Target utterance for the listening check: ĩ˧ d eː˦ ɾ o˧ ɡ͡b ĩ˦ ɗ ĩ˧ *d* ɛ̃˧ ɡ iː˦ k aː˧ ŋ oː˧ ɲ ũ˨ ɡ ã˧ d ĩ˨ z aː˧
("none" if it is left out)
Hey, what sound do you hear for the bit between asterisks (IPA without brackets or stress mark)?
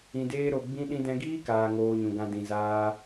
d